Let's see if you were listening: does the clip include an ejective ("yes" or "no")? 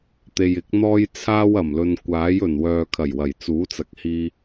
no